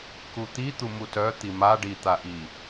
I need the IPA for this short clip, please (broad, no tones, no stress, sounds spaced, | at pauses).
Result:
k u t̪ i t̪ u m u t œ t̪ i m a ɖ i t̪ a ʔ i